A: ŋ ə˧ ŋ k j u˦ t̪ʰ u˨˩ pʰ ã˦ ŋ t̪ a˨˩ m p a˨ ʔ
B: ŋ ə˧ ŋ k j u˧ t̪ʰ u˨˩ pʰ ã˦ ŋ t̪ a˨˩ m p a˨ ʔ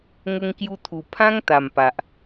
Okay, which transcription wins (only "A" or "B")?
B